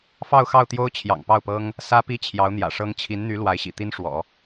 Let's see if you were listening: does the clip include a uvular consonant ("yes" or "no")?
no